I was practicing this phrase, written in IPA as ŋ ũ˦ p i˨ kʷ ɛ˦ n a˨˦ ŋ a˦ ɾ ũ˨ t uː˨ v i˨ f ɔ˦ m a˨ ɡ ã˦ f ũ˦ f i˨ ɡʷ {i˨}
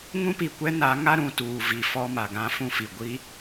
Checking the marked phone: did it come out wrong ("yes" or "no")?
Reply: yes